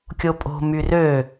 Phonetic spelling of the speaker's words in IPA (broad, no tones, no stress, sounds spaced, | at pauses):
kʲ o pʼ o̤ m y r ø